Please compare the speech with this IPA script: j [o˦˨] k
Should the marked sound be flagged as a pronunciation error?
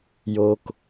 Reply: yes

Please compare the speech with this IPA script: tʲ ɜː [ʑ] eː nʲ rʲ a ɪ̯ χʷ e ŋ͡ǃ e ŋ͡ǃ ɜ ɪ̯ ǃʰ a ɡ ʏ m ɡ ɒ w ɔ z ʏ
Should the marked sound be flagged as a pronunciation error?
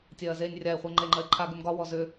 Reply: yes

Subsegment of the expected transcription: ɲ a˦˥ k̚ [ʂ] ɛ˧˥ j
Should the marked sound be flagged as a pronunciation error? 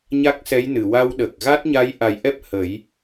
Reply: yes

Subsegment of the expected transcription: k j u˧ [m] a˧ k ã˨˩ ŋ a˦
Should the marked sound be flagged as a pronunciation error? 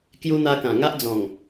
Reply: yes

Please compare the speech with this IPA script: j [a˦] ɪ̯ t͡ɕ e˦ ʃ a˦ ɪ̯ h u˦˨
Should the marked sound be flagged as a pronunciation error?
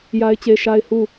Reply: no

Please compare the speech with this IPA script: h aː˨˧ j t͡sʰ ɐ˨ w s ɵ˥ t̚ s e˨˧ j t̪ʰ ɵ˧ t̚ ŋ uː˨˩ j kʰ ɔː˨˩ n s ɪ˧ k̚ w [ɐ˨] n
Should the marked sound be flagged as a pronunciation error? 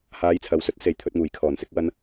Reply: yes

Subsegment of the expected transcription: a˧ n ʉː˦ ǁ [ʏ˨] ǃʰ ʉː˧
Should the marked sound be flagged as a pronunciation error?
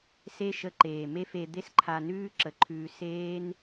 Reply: yes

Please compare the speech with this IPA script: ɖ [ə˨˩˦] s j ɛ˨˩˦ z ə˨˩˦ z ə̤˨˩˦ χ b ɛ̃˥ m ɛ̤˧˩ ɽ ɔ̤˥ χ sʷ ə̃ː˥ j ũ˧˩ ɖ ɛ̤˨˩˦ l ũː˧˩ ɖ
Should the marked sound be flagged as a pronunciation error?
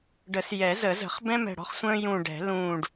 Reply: no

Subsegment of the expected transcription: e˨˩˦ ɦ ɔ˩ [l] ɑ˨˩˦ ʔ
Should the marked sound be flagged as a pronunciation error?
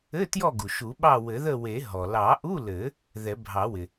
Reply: no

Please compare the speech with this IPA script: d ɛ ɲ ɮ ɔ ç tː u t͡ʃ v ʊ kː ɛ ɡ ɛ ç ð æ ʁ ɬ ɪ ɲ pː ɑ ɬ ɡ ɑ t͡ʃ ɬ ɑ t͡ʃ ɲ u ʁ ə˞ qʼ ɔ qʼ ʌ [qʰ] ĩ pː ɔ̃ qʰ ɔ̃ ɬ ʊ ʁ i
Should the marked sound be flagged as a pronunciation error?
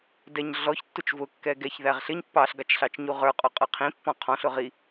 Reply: no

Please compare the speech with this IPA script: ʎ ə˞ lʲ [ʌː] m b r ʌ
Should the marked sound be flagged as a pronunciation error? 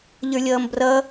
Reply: no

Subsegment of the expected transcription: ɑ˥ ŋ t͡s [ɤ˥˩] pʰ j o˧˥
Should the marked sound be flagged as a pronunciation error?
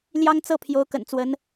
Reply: no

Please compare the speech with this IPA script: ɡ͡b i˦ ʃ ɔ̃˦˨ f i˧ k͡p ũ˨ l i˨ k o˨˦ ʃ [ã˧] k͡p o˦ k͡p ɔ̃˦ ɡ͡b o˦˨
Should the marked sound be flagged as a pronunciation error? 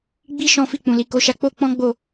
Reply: yes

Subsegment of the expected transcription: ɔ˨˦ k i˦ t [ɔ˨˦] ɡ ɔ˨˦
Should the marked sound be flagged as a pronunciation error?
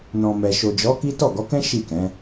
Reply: yes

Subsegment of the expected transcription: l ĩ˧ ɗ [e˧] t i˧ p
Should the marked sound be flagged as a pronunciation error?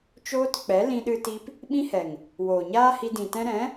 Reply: yes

